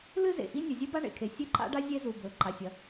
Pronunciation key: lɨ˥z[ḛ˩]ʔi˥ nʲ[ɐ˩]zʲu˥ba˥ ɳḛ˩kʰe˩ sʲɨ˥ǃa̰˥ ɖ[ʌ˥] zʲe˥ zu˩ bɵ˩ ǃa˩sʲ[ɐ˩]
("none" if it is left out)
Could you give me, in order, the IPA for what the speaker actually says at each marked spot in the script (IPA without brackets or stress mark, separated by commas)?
ḛ˩, ɐ˩, a˥, ɐ˩